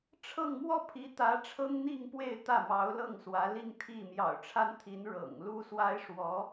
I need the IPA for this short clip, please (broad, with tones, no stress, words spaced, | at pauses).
ʈ͡ʂʰɤ˥˧ŋ mwɔ˥˩pʰi˧˥t̪ä˧˥ ʈ͡ʂʰɤ˥ŋn̪i˥˧ŋpwe˥˧ɪ̯ t̪ä˥˩mɑ˧˥ʊ̯ lɤ˥˩ŋswä˧˥li˥˧ŋ t̪ʰi˥˩ mjɑ̰˨˩ʊ̯ʈ͡ʂʰa˥nt̪ʰi˧˥n ɻɤ̰˨˩ŋ lu˥swa˥ɪ̯ʂwɔ˧˥